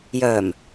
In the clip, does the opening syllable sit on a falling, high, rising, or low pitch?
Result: low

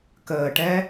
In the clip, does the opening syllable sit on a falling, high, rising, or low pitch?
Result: low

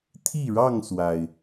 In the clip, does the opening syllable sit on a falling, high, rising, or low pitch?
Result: falling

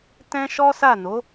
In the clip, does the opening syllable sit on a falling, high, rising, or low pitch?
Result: high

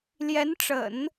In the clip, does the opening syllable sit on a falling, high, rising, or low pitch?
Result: rising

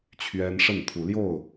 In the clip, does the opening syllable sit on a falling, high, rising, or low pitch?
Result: high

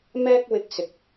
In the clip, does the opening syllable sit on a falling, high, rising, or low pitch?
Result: high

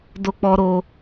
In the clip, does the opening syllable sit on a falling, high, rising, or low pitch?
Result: high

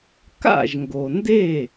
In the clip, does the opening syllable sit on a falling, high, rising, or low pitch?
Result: falling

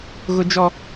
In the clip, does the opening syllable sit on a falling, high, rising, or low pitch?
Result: high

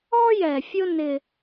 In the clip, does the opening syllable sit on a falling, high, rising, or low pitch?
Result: high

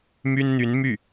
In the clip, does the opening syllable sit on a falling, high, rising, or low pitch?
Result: high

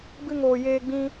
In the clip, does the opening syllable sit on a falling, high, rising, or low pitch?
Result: high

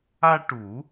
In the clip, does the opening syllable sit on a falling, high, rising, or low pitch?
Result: high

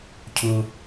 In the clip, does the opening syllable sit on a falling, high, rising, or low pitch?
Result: high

